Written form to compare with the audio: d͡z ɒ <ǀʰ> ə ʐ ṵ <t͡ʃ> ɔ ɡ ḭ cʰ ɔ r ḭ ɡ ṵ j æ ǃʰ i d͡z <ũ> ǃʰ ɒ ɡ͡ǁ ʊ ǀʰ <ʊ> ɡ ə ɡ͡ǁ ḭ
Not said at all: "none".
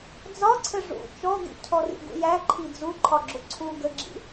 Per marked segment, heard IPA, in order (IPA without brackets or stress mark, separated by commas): ǀʰ, t͡ʃ, u, u